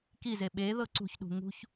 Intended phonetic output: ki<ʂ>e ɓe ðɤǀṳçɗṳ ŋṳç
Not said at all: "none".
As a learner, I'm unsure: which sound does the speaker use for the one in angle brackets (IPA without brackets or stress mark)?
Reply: z